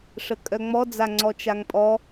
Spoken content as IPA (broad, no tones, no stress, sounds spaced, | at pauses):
ʂ ə kʼ œ ŋ͡m ɔ d͡z a ŋ͡ǀ ɔ t͡ʃ a ŋ pʼ ɔ